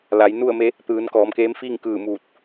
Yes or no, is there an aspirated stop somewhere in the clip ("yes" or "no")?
no